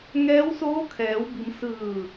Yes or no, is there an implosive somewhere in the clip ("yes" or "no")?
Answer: no